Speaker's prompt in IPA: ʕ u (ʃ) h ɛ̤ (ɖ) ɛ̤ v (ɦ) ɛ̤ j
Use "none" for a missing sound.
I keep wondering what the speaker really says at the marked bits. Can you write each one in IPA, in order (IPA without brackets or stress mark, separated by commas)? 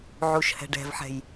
ʃ, ɖ, ħ